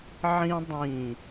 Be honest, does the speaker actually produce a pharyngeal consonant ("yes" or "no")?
yes